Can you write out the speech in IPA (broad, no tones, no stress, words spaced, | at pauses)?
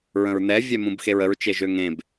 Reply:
ɹə̃ɹnɛ vʲɛmũbxeɹəɹ t͡ʃeʒøŋẽb